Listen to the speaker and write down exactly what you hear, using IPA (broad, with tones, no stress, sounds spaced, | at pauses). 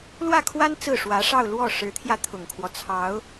l w ä˥˩ kʰ w a˥ n t͡s ɹ̩˥˩ ʂ w ä˧˥ ʂ ɑ˥˧ ʊ̯ l w ɔ˥˩ ʂ ɻ̩˧˥ t̪ʰ j ä˧ t̪ʰ ʊ˨˩ ŋ kʰ w ɔ˦ t͡sʰ ɑ˧˥ ʊ̯